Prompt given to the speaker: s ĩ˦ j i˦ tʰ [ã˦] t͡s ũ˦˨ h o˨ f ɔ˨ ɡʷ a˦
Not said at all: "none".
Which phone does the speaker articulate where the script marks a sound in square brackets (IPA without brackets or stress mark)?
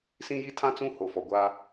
ã˦